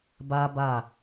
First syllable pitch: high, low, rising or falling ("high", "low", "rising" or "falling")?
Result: high